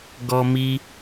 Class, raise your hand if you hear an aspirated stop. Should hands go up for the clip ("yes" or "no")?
no